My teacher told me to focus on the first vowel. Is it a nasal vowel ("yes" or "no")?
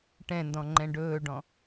yes